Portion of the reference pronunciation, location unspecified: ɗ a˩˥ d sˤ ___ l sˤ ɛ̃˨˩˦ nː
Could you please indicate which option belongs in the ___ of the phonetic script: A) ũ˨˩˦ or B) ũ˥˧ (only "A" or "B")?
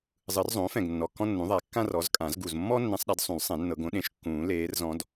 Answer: A